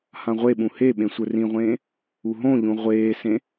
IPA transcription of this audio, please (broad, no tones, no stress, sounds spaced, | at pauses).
h ã ʁʷ e ɓ ũ h e ɓ ẽ sʷ ə˞ r ĩ ʁʷ ẽː | u ɦ õ ʎ ũ ʁʷ eː s ẽ